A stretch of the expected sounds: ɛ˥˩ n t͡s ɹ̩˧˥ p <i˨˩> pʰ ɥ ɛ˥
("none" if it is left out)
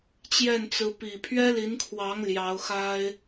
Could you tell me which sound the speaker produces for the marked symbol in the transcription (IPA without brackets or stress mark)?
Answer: i˨˩